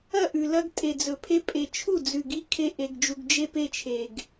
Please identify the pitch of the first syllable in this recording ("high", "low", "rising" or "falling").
falling